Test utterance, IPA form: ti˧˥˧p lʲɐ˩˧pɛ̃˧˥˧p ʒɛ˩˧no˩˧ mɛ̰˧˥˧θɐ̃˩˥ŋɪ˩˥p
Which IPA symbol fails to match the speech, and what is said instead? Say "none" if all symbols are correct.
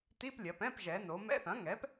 ɪ˩˥ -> ɛ˩˥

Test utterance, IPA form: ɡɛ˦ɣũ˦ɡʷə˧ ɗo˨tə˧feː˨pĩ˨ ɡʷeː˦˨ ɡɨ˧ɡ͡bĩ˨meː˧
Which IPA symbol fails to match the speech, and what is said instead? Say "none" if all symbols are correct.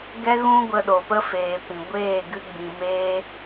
t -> p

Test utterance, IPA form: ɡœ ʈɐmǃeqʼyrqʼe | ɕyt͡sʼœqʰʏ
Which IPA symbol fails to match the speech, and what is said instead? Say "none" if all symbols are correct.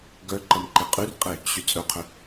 ʈ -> ǃ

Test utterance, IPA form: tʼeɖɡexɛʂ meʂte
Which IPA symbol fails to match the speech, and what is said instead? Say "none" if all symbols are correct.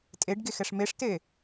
none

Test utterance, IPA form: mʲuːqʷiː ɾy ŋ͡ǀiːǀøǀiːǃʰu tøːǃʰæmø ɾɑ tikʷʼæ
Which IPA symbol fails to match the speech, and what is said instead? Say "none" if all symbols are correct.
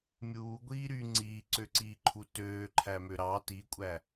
qʷ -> ɡʷ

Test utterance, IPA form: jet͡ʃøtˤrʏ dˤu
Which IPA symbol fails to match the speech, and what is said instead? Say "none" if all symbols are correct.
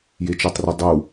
none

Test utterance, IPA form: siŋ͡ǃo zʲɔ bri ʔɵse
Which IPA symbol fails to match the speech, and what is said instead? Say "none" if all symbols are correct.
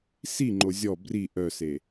ɵ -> œ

